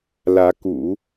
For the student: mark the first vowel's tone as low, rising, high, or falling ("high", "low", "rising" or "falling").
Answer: rising